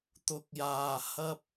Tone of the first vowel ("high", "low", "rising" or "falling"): low